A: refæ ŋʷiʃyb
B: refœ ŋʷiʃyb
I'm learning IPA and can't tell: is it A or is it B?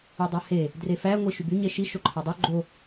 A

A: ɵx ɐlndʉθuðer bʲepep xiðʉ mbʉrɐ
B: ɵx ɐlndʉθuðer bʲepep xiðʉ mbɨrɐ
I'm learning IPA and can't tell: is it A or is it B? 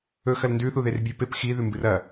B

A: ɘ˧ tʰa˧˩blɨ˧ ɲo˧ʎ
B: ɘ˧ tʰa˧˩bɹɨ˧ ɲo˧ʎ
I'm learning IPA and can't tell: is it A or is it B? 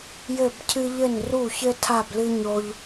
A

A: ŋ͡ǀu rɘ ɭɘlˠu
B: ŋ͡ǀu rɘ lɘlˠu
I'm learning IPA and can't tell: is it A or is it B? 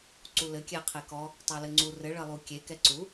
A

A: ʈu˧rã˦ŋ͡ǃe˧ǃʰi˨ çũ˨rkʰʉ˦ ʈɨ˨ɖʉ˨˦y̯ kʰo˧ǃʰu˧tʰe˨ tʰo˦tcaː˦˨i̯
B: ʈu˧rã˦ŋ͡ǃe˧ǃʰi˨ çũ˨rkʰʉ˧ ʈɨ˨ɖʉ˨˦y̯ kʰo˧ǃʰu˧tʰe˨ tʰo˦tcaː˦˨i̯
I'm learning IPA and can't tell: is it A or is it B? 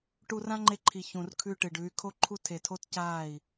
B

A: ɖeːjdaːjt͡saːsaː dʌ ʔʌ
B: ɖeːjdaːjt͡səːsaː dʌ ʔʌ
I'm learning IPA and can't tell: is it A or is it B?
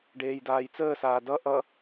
B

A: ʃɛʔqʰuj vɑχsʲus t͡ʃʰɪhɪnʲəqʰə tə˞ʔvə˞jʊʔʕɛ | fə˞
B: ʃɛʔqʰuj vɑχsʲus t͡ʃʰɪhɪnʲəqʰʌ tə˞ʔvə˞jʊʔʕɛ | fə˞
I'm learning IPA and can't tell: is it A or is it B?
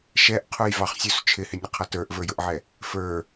B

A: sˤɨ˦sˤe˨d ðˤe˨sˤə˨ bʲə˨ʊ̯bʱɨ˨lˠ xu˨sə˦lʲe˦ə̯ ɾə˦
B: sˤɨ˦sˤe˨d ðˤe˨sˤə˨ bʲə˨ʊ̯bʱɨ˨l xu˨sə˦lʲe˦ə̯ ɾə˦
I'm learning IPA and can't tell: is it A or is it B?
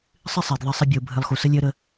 A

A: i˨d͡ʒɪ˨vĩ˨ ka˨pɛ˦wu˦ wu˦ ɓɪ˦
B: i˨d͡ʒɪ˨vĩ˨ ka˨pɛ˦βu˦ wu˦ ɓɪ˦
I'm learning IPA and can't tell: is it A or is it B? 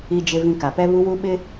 B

